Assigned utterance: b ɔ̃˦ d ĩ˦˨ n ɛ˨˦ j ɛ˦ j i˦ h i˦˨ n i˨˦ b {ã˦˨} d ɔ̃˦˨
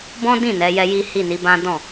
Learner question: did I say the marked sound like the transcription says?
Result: no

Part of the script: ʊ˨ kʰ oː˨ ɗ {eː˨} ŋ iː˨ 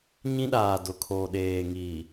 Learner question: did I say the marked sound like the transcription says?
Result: yes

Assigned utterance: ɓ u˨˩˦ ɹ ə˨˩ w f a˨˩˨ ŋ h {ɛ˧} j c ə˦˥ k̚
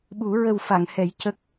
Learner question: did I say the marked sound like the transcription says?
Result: no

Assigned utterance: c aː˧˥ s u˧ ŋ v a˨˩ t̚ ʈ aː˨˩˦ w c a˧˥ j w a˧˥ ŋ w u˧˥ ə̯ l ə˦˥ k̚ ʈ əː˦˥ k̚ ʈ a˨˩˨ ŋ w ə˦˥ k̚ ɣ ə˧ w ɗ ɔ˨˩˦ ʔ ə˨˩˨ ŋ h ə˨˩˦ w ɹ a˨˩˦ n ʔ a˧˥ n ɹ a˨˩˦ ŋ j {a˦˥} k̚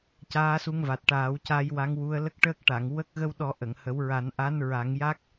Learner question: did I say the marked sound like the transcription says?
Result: yes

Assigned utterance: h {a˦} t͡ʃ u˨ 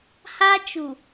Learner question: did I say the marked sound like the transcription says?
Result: yes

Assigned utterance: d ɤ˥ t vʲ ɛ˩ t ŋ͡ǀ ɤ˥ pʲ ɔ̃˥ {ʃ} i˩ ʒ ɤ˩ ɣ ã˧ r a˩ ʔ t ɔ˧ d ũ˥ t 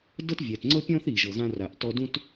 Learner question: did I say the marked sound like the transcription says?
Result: no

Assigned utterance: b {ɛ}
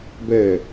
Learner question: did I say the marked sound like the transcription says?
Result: yes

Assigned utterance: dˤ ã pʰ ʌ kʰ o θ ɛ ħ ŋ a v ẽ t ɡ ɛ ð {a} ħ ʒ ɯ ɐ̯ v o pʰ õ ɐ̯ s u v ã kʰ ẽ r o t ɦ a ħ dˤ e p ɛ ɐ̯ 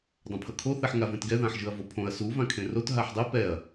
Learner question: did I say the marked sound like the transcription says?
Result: no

